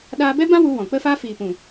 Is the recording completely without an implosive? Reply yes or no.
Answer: no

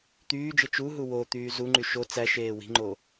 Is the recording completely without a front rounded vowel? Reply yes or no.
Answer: no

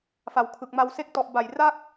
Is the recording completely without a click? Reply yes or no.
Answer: yes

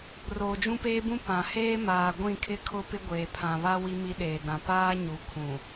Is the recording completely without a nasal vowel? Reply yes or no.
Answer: no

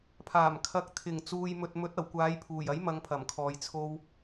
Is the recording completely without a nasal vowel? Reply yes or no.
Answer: yes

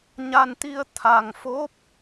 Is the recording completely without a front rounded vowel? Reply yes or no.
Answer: yes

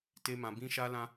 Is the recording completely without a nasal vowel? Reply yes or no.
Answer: no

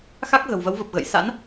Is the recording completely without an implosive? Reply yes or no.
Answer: yes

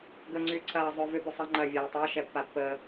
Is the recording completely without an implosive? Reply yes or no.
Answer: yes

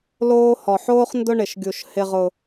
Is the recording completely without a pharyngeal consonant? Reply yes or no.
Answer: no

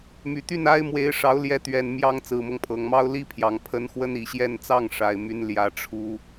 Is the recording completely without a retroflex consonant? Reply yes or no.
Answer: no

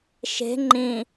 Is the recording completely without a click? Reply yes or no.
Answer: no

